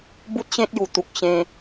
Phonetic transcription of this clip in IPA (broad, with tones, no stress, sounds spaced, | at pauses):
b u˦ t̚ ɕ ẽ˦ t̚ j u˨˩ t̪ u˨ k̚ ɕ ẽ˧